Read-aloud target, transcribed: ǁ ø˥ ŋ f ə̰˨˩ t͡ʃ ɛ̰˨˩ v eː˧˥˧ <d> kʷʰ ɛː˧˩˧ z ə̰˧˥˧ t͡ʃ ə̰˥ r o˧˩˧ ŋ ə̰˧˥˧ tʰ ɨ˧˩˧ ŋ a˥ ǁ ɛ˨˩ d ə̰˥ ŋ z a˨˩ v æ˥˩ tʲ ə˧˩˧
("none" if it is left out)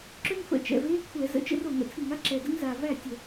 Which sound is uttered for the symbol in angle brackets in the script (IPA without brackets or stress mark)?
none